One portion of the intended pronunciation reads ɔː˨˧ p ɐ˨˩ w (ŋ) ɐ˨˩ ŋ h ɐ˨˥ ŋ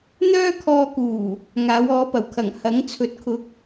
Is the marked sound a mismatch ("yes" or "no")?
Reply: yes